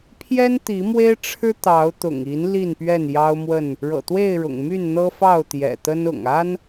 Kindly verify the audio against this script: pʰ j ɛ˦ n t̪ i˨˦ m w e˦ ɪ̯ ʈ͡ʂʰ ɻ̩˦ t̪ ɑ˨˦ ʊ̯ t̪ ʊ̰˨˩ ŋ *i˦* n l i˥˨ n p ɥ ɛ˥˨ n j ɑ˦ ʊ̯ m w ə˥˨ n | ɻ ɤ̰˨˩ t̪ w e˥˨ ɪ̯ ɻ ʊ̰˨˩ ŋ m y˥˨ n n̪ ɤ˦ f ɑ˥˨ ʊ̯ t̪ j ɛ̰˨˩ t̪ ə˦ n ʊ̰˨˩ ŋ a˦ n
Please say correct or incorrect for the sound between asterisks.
incorrect